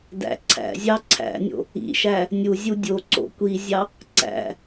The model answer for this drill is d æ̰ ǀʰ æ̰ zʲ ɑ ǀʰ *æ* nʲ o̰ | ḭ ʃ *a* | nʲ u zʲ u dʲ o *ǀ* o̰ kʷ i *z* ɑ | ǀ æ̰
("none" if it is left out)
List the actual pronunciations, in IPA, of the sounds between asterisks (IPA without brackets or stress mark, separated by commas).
æ̰, æ, ǀ, zʲ